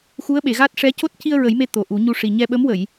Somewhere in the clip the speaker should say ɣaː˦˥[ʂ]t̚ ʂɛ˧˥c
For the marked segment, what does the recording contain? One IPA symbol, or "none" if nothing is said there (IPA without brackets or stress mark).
none